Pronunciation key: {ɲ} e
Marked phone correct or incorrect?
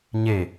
correct